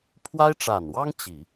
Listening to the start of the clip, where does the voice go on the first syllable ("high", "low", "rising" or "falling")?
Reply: high